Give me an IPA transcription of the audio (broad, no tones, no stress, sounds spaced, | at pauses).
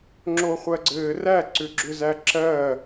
ŋ͡ǁ o χʷ ɜ ɡ͡ǀ ɘː r æ ǀ ʏ ɡ͡ǁ ʏ z æ ǁ ɜ